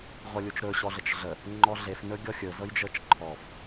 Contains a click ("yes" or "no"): yes